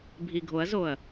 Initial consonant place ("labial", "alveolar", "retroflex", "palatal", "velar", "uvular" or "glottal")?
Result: labial